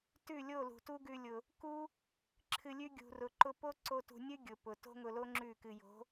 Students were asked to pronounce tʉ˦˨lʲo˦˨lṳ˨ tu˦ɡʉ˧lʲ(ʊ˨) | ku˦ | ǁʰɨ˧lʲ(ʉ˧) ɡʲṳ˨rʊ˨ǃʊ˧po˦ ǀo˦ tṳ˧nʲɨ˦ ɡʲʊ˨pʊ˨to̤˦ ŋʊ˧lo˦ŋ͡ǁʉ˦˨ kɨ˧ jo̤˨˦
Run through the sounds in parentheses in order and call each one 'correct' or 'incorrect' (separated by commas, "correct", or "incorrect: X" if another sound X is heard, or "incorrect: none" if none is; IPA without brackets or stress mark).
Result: correct, incorrect: ʉ˦